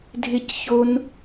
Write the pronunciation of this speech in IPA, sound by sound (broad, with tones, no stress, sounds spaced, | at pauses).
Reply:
dʱ ɪ˦ c ç o˦ n